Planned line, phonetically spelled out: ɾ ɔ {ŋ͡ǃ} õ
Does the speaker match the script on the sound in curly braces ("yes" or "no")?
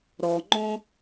yes